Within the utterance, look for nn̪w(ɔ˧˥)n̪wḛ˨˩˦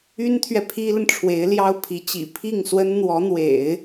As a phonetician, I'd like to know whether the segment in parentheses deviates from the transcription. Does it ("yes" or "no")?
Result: no